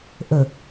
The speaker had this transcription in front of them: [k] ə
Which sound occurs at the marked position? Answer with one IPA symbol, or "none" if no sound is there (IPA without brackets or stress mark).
ʔ